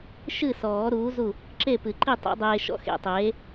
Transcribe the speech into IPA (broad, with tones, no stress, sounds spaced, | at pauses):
ʃ ɨ˥˨ s ɔː˨˩˦ ɾ uː˨˥ z u˥˨ | ǁ e˥˨ p ɨ˨˩˦ ǃ i˥˨ tˤ ḛ˨˥ dˤ eː˧ ʃ ɔ̰˨˥ x ḛ˨˩˦ tˤ eː˨˥